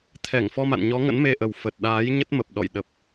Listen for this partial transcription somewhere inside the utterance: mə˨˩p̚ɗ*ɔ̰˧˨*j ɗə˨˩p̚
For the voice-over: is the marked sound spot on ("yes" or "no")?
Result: yes